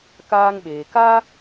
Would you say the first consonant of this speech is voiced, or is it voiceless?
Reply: voiceless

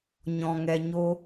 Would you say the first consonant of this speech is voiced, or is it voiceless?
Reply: voiced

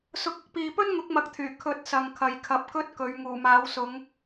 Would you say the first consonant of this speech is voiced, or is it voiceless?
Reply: voiceless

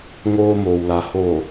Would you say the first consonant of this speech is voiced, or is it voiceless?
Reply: voiced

